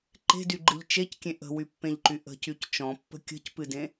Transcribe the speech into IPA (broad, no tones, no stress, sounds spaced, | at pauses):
ǃ e̤ d y ɡ͡ǃ ɨ ʎ t͡ʃ e c kʲ ẽ ʔ ə̤ w y pː ẽ ʎ ǃ y ʔ ə̤ c y c t͡ʃ ɔ̃ pː ə̤ kʲ ə̤ c p ɨ d ẽ